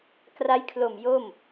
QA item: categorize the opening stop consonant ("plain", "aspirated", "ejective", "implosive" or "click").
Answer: plain